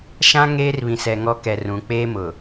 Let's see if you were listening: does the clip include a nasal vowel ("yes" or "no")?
yes